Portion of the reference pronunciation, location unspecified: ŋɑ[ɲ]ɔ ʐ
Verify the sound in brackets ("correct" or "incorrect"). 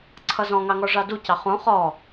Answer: incorrect